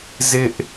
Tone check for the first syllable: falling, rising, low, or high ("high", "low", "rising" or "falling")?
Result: high